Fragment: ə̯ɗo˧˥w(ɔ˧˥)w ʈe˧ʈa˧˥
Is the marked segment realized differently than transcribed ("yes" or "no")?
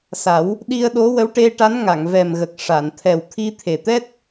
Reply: yes